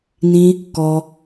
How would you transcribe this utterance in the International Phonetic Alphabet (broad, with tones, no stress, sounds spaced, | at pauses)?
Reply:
n ĩ˦ | k ɔ˧